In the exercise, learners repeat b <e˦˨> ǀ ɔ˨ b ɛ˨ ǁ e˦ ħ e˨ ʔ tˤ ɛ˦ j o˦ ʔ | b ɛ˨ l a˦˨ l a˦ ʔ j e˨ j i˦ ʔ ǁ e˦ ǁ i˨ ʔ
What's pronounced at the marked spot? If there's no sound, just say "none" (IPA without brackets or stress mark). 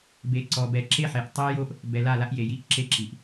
e˨